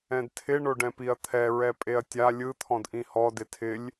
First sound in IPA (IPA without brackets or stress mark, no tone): ɛ̃